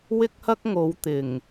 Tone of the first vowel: high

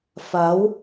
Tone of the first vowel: rising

